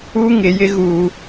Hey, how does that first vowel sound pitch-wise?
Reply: high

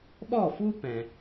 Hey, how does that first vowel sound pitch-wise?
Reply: falling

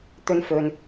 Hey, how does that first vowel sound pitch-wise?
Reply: high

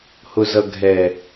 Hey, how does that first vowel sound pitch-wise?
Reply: low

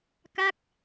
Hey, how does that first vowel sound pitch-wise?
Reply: falling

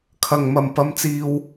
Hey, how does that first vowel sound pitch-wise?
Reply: low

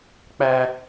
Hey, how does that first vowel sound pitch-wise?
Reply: high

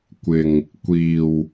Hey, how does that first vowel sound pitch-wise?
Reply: low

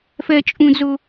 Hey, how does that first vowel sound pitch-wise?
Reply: high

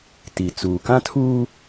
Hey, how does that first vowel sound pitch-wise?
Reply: low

